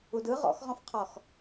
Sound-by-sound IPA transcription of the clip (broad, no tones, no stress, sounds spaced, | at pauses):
u d ɯ ʁ ɔ̰ x ʁ ɔ̃ f qʰ ɔ x